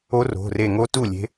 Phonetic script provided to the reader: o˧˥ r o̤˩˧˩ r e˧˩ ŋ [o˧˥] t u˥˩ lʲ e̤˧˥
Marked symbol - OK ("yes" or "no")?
yes